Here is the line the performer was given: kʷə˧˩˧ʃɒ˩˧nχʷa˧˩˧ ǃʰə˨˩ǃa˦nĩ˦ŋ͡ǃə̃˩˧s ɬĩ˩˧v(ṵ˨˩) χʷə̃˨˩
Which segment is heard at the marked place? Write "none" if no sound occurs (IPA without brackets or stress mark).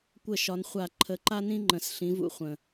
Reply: ṵ˨˩